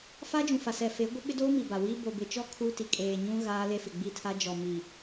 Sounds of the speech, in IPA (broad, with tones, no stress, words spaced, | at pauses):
fa˦d͡ʒũ˨fa˨ sɛ˨fe˨˦ ɡʷɪ˦ ɓɪ˦doː˦mi˨ ba˨wiː˦ bo˨bɪ˨t͡ʃɔ˦ kʰuː˦ti˨ kʼeː˨ɲũ˦ ɣaː˦ le˦fɪ˨ɡ͡bi˦˨tʰa˦ d͡ʒɔ˨mi˨